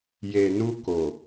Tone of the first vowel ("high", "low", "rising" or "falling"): low